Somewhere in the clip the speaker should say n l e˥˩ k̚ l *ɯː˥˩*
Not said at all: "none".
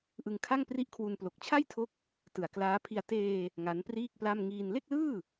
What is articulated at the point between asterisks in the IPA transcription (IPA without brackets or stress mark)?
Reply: ɯː˥˩